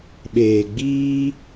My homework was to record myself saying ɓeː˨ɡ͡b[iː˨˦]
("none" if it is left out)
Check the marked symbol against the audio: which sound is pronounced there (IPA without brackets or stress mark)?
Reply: iː˦